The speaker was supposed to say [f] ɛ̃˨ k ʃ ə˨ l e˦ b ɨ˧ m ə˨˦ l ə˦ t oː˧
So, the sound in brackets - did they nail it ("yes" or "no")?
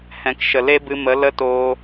no